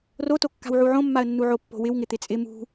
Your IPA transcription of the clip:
r o t o kː a̤ w ʕ u ʕ õ mː a ə̯ nː u ʕ o pː o̤ w ɪ w ŋ ɪ t̪ ɪ t͡sʼ ɪ m ṳ

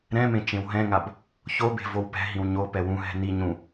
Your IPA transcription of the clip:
ɾ ɛ̃ m ẽ t͡ʃ ẽ w ɦ ɛ̃ ŋ a b | ç o b e̤ v o w p ɛ̤ ɦ ĩ w ɲ o p ɛ w ũ ɦ ɛ̤ n i ɲ ũ

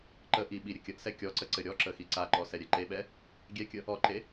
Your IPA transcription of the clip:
ǃ ə ʔ i ɓ i ɾʲ ɘ kʲ ə ʔ s ɛ kʲ ɔ ǀ ə ǀ ɘ ɾʲ ɔ ǁ ə x i ǀ a ǃ ɔ s ɛ ɾʲ ɛ ǃ e ɓ ɛ | ɡʲ ɛ kʲ ə | ɔ ǃ e

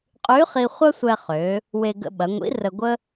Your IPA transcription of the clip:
qʼ y˧˥ χ i˧ χʷ ɐ˥ sʷ ɛ˧ χ ø˩˧ | w e˧ ɡ ə̰˧ ɓ ɐ˩˧ ŋʷ ḭ˧˥ r ə˧ ɡʷ ə˥

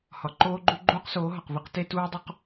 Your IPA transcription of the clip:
h ɒ˨ ǃ oː˦ ɡ͡ǃ u˦ ɡ͡ǃ uː˦ q s oː˨˦ ɦ ɒ˨ q v i˦ q t e˦ t uː˦ dˤ u˨ q

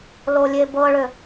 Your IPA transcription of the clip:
l o lʲ e b ɤ ɭ ʏ

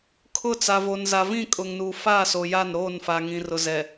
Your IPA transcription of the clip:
kʰ ʊ˦˨ t͡s a˨ v o˨ n z a˨ v ĩ˦˨ kʼ ʊ˨ ŋ n uː˨ f aː˦˨ s o˨ j a˦˨ n ɾ oː˦˨ n f a˨ ŋ ĩ˨ r ʊ˨ z ɛ˨

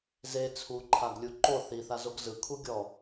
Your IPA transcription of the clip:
z e t͡sʰ u ǃʰ a ɡ lʲ u ǃ o θ i θ a z o ɡ z ɯ kʰ u ɡʲ ɔ

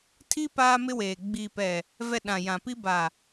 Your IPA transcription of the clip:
tʰ i˦ p aː˦ m ɪ˦ w eː˨ ɡ͡b i˨ p ɛ˨ | v ɛ˨ ɗ ã˨ j ã˨ p i˦ b a˨

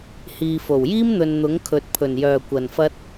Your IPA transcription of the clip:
h iː˨ f o˨˩ w j iː˥ m n̪ ɵ˨ n n̪ ʊ˨˥ ŋ kʰ ɵ˨ t̚ pʰ ɵ˨˩ n j œː˨˩ kʷ ɐ˨˩ n f ɐ˥ t̚

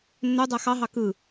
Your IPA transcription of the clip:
nː ø dˤ æ x ɑ ɦ ɑ k ɯ

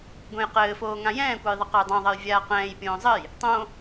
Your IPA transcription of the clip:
ɡʷ ɛ̃ j q ɘː f oː ŋ ã j ɛ̃ː kʷ a j ðˤ ɨ q a j dˤ ã ðˤ ɐ j vʲ aː q ɛ̃ː j pʲ õː zˤ ɘ j | tˤ õ

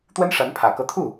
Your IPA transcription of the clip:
t̪ w ə˥ n ʂ a˧˥ n pʰ ä˨˩ k ɤ˥˧ t̪ʰ u˥˩

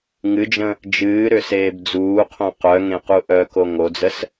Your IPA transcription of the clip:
ŋ ɨ d͡ʒ ə̃ | d͡ʒ ɨː ɾ ʏ s eː b d͡z uː qʰ õ q œ ŋ ẽ q u ʔ œ k o ŋ o d͡z ə s

